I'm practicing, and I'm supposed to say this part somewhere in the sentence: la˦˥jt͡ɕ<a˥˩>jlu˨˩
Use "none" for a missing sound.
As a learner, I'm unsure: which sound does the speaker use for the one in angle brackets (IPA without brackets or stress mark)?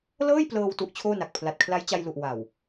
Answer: a˧